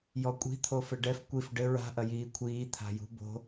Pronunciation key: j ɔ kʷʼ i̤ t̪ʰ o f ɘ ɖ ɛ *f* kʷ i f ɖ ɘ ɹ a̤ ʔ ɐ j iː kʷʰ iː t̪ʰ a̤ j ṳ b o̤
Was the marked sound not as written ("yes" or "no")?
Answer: no